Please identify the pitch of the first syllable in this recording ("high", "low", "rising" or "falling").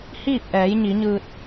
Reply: falling